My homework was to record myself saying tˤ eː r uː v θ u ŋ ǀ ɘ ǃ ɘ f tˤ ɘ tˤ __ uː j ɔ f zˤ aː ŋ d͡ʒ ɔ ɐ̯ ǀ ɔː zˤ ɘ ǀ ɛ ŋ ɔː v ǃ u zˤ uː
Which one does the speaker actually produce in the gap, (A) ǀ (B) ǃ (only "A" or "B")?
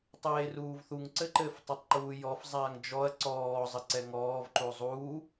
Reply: B